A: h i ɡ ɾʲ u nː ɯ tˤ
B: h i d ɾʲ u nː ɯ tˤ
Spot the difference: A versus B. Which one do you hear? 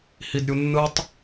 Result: B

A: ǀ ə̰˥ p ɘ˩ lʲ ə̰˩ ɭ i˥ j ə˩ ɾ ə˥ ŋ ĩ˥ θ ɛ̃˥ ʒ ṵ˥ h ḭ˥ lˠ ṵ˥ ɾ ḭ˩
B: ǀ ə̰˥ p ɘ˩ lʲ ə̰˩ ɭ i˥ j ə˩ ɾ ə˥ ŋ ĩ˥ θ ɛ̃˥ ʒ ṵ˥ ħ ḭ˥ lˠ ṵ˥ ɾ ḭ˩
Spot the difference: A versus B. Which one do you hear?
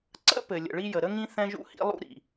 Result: A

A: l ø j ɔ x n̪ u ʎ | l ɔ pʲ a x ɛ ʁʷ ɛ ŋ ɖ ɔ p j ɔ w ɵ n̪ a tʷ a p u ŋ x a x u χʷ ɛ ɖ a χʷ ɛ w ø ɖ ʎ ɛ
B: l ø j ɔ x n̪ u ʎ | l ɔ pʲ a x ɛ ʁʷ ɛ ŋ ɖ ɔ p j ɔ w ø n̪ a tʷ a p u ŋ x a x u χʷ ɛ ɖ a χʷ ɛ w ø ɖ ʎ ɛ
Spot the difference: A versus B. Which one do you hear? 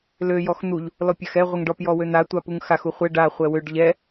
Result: B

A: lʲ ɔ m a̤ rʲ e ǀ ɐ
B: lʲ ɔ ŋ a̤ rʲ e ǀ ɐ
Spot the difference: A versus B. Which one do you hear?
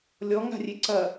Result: B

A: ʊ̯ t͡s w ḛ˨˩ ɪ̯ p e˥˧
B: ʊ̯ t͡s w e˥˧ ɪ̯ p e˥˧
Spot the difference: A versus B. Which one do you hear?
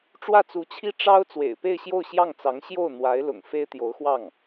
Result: A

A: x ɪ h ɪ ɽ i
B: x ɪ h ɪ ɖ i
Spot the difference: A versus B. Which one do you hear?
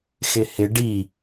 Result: B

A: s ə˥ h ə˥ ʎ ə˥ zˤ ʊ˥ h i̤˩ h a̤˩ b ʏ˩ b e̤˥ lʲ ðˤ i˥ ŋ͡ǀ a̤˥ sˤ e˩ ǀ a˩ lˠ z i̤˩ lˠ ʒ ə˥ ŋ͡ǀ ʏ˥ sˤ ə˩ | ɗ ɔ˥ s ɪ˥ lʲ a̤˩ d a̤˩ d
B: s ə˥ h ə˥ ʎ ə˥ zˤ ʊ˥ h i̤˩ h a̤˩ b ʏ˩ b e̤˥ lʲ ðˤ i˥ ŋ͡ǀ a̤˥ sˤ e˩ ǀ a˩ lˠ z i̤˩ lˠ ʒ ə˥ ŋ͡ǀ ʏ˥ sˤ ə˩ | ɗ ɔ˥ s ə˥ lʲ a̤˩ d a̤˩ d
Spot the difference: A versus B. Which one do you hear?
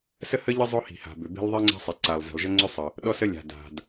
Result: B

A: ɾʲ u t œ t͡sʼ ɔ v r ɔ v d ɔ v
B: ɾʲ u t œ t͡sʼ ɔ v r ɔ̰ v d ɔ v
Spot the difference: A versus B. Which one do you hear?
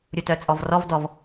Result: A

